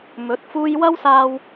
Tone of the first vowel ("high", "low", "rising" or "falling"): rising